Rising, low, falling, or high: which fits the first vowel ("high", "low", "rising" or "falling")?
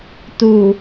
low